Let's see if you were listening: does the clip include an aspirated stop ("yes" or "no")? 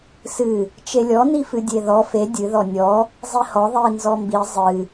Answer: no